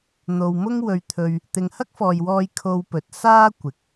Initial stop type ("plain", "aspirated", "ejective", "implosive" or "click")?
aspirated